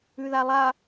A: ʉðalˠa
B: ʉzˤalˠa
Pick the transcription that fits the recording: A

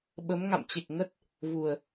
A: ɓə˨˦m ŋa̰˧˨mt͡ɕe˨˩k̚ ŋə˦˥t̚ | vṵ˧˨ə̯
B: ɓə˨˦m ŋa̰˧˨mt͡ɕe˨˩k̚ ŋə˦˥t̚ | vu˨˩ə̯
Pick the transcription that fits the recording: B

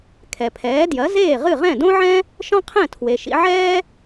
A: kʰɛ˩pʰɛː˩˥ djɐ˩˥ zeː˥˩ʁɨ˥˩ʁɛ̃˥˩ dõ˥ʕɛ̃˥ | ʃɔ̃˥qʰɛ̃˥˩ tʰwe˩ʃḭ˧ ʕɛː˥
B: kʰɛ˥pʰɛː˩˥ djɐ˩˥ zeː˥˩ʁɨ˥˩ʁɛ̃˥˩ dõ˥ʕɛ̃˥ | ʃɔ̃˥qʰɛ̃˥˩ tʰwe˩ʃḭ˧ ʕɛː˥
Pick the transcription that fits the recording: A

